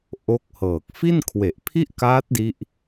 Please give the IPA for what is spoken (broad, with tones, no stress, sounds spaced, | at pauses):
ʔ o˦˥ k̚ h ɤː˨˩ k̚ f i˥˩ n kʰ w e˨˩ ʔ pʰ i˥˩ ʔ k aː˦˥ t̚ d i˦˥ ʔ